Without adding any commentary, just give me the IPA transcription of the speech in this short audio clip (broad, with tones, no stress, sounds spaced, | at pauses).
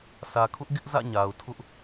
s ä˨ kʰ ʊ˦ ʔ ɡ ɪ˦ ʔ z ä̰˦˨ ɲ a˨ ʊ̯ tʰ ʊ˦ ʔ